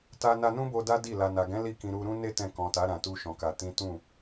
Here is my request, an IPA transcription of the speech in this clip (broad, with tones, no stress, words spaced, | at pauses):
ta˧na˧nũ˦bo˧ da˦di˦˨ la˨na˨ɡɛ̃˨˦ li˦˨kĩ˧ ɾu˧ɾũ˦ ne˦ tɛ̃˧kɔ̃˨ta˨˦ ɾã˧tu˦ʃɔ̃˧ka˧ tĩ˦ tũ˦˨